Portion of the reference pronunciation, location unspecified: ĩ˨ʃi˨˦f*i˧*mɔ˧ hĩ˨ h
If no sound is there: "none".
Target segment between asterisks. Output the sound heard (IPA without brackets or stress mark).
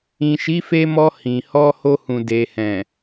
e˧